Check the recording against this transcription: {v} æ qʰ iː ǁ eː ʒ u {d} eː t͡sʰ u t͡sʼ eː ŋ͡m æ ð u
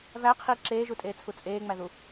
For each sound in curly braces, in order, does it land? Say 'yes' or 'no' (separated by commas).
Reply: yes, no